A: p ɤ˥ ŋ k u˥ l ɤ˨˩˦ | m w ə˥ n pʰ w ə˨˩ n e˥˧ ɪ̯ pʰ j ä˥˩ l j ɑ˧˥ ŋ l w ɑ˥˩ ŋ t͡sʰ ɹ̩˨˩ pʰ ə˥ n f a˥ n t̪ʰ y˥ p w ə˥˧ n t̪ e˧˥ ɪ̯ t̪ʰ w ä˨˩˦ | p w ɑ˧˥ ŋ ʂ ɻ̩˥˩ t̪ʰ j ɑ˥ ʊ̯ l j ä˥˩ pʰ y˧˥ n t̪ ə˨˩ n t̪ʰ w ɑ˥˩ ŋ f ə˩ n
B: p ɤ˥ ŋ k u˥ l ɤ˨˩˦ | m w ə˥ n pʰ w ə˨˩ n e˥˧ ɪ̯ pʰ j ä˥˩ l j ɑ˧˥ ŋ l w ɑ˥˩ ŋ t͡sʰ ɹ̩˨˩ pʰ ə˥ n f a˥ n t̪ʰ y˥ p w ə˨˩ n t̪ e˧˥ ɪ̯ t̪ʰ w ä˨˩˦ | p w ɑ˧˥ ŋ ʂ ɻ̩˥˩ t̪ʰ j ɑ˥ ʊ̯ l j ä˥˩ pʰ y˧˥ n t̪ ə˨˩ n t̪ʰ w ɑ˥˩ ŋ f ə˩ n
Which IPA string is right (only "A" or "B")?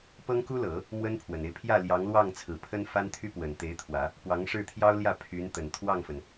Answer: B